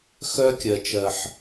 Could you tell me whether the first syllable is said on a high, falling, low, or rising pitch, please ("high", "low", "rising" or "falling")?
high